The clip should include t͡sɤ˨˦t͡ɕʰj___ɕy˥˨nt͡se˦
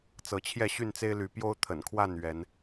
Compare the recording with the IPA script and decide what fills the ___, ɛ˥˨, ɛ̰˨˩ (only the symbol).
ɛ˥˨